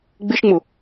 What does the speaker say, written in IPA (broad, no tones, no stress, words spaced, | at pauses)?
ɡ͡bɪʃŋ͡mʊ